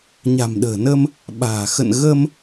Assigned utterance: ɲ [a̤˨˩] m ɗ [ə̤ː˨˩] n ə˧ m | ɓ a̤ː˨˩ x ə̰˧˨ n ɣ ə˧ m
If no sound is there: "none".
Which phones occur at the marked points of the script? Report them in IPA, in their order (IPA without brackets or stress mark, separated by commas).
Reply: a̤˨˩, ə̤ː˨˩